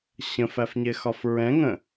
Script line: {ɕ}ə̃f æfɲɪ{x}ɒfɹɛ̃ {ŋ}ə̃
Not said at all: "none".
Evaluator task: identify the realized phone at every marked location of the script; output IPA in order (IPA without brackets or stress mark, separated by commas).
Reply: ɕ, x, ŋ